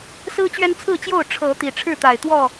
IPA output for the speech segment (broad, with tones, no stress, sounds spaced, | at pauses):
s ɹ̩˦ t͡ɕ ɥ ɛ˦ n t͡sʰ ɹ̩˥˨ t͡ɕ j o˥˨ ʊ̯ ʈ͡ʂʰ ɤ˨˦ t̪ i˨˩ ʈ͡ʂʰ ɻ̩˥˨ t̪ a˨˩ ɪ̯ t̪ w ɔ˥˨